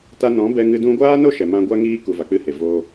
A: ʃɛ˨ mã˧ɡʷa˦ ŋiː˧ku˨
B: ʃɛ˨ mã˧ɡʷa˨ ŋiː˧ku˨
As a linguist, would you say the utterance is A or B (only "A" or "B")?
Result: A